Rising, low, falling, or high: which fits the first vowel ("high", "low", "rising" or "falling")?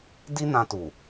high